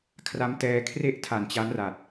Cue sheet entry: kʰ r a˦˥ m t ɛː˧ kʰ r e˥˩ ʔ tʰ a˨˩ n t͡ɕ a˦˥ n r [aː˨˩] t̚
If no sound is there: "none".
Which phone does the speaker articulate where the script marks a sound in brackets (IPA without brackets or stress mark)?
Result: a˨˩